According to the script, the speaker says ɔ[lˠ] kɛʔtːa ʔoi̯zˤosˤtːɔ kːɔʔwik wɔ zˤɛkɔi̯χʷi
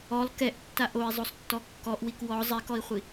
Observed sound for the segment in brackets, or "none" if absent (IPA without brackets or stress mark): lˠ